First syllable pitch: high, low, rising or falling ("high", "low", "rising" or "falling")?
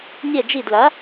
falling